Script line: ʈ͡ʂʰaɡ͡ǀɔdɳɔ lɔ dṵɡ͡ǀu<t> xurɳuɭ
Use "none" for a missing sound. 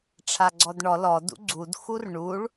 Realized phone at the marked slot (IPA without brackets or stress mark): d